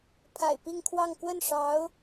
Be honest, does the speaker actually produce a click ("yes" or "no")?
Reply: no